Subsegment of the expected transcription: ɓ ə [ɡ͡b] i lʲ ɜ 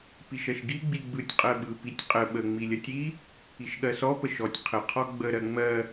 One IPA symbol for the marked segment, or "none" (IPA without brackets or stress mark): ŋ͡m